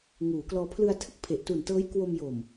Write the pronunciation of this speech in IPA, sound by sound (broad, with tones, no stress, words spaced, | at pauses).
ŋuː˩˦klɔː˧ pʰlɯ˧a̯tʰɯ˥˩k̚pʰe˨˩ʔ tu˨˩ntɤː˦˥jkwo˧m jo˨˩m